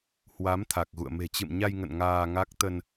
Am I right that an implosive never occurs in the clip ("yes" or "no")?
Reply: yes